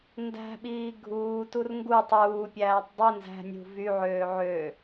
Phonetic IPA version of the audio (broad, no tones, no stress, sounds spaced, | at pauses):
n d æ̤ ɓ iː ɡʱ uː t u r ŋ ɡ u tˤ uː pʲ æː tˤ dˤ i n z æ̤ nʲ ṳ v y ʕ øː ʕ ø